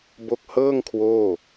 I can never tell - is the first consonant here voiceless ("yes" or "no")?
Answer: no